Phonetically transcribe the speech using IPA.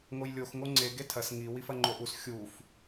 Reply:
ŋ o j lʲ o x ŋ o ŋ͡ǀ e ɡ e tʰ ɐ s ŋ i w i f ɐ ŋ͡ǃ o ʔ u s xʲ u f

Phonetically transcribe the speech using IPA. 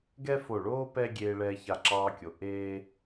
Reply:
ɡ ɛ˥ f o˧˩ ɭ oː˥ p ɛ˥ ɡʲ eː˧ ɭ ɛː˧ ç a˧˩ ǁ ɑː˧ kʲ o˩˧ ʔ eː˧

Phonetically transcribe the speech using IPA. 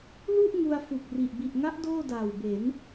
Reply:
l u˥˩ ʔ ŋ u˧ a̯ f u˨˩ k̚ r i˨˩ ʔ b i˨˩ ʔ ŋ a˦˥ ʔ d oː˥˩ d aː˨˩ w b e˩˦ n

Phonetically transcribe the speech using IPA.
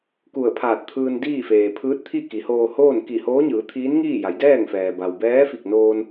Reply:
k u˧˩ ə̯ pʰ aː˧˩ t̚ t̪ʰ ɯː˧ n d iː˥˨ f eː˩ pʰ ɯː˧˥ t̚ t̪ʰ i˥˨ k i˩˧ h oː˧ h oː˥˨ n k i˧˩ h oː˧˥ ɲ ɯː˩˧ t̪ʰ iː˧˥ n ŋ iː˥˨ j a˩˧ j d ɛː˥˨ ŋ f ɛː˩ b a˩ w b ɛː˧˥ f i˧˩ k̚ n oː˧ n

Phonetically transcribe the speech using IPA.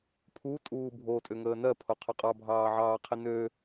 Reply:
pʰ u tʼ uː bʱ o tʼ ʏ ŋ əː n ɜ pʰ o qʰ ʏ qʼ ɑ bʱ ɑː ʕ ɑː qʰ i n ø

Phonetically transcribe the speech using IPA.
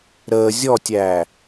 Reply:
ɾ əː zʲ ɔ tʲ æː

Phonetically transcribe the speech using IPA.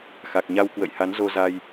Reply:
x a˨˩ k̚ ɲ a˧ w k w ə̰˧˨ j h a˨˦ n z o˧ z a˧ j

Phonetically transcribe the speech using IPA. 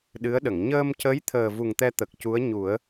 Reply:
ɗ ɨ˧˥ ə̯ ɗ ə˨˩˨ ŋ ɲ əː˧ m c ə˧˥ j t̪ʰ əː˨˩ v u˨˩ ŋ t̪ ɛ˧ t̪ ə˨˩ k̚ c u˧˥ ə̯ ɲ u˨˩˦ ə̯

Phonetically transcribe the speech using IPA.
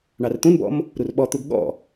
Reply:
ɳ ɑ r t̪ ũ n b ɔ̰ m | ɾ u r ɓ ɔ t̪ u ɡ ɠ ɔ̰

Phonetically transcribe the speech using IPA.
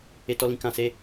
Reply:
e˦ t ɔ˦ l ĩ˦ k ã˧ s e˦

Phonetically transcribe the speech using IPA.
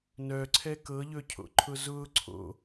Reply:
n œ ǀʰ ɛ k ɤ ʎ ɵ cʰ o̰ ǃʰ ʊ z ʊː ǀʰ o̰

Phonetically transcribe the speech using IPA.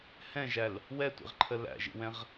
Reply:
h ɛ̃ ʒ æ l | w ɛ tʷ ḭ ʁ ǃʰ ə l æ̰ ʒ ḭ w ɛ̃ ʁ

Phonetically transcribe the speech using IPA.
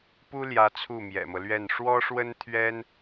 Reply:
p u˥ l j ä˧˥ t͡sʰ u˥˩ m j ɛ̰˨˩ m ɤ˦ l ɥ ɛ˥˩ n ʂ w ɔ˥ ʂ w ə˥ n t̪ʰ ɥ ɛ˥ n

